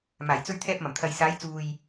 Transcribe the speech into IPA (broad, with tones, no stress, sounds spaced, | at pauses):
m aː˨˩ j t͡s ɵ˧ ɥ t̪ʰ ɛː˧ p̚ m ɐ˨˩ m t̪ʰ ɐ˨ j s aː˨˧ j t͡s uː˨ j